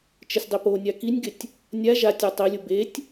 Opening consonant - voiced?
no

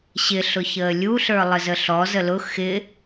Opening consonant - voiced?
no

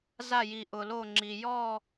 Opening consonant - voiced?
yes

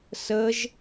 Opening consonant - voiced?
no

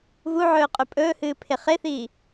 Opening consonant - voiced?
yes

